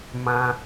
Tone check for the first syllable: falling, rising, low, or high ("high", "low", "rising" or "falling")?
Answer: low